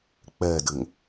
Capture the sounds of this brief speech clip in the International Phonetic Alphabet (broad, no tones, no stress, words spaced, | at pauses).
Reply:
k͡pɛdɘŋ